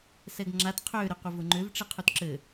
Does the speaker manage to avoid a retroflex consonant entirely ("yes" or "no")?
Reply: no